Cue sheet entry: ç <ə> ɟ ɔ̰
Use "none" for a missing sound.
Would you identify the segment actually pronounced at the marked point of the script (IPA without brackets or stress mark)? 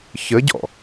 ə